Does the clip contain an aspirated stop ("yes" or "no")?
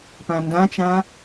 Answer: no